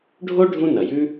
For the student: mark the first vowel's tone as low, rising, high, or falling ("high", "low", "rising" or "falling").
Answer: high